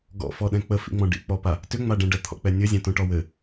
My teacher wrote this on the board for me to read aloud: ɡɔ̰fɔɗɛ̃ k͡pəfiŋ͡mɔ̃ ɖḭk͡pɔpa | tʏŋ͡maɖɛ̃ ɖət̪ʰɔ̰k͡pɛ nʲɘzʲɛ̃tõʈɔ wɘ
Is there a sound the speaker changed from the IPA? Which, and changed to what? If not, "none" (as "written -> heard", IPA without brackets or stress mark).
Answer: i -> ḭ